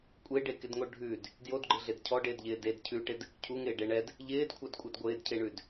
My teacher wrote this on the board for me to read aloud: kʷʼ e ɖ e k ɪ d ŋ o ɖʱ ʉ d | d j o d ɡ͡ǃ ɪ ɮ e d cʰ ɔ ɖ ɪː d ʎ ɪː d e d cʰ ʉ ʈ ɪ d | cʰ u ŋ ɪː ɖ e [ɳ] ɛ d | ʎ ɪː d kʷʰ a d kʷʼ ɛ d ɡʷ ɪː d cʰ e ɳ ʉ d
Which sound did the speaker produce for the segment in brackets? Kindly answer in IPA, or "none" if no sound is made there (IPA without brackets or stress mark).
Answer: ɳ